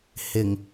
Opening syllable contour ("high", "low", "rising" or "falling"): low